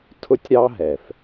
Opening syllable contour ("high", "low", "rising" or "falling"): high